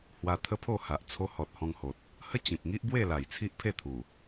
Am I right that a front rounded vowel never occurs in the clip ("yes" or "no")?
yes